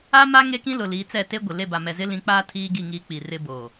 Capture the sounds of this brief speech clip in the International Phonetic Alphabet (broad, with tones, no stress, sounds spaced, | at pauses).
a˦ m a˦ ŋ e˦ k ĩ˦ l ʊ˨ l i˨˦ t͡s ɛ˦˨ t e˦ ɡʷ ɪ˨ l e˦˨ b a˨ m ɛ˨ z ɪ˦ l ĩ˨˦ k͡p aː˦ tʰ iː˦ ɡ i˦˨ ŋ iː˦ k͡p i˨ r ɪ˦ b oː˨